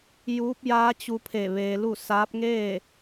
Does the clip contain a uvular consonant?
no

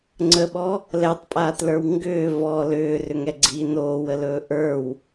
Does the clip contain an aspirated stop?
no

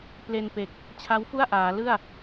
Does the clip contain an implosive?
no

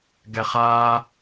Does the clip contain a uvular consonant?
yes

